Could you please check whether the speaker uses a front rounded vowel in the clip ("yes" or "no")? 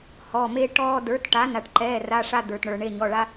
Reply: no